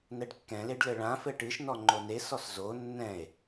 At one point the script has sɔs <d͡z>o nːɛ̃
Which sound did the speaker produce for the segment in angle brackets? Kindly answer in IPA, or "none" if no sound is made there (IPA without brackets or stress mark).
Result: z